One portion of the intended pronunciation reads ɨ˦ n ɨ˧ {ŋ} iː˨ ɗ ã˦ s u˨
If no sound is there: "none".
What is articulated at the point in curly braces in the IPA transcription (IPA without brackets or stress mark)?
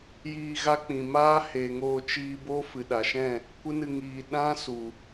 ŋ